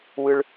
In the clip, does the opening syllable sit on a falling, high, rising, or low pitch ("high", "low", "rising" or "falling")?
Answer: high